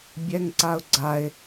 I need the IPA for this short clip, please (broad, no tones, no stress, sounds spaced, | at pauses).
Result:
bʲ ɛ ŋ ǀ a ʊ̯ ɡ͡ǀ a ɪ̯